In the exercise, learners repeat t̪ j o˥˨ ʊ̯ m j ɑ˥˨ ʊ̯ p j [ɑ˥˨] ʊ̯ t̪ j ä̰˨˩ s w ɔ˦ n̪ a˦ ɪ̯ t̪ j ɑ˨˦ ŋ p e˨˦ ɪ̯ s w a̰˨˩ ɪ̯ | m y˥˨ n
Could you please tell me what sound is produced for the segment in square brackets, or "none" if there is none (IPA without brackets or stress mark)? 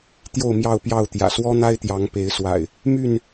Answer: ɑ˥˨